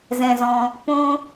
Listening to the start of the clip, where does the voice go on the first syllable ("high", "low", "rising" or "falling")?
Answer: low